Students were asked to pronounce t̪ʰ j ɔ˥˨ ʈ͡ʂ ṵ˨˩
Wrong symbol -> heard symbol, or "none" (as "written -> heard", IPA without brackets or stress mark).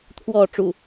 j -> w